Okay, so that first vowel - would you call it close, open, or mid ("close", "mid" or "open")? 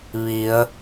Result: close